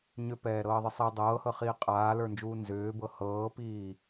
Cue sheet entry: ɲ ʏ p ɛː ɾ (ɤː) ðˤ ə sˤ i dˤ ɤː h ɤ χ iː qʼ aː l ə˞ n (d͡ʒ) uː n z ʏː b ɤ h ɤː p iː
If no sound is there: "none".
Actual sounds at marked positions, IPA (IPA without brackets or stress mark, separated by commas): ɤː, d͡ʒ